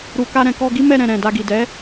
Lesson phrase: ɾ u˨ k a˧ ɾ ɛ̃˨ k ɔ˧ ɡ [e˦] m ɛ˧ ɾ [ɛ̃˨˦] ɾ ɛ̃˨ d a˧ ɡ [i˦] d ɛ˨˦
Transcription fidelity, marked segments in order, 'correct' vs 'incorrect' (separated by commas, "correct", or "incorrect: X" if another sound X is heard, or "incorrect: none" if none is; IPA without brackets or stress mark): incorrect: i˦, incorrect: ɛ̃˨, incorrect: i˨